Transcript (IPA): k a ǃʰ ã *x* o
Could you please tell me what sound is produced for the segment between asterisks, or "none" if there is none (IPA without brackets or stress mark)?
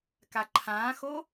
x